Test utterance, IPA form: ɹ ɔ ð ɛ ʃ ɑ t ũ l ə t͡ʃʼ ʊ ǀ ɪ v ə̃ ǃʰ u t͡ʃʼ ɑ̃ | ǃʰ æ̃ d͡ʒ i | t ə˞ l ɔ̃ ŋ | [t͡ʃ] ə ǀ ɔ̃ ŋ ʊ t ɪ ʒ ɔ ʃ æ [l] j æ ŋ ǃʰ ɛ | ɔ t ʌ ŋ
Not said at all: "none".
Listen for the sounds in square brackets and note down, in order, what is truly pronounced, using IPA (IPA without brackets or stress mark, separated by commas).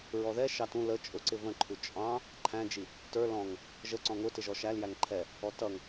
ʒ, l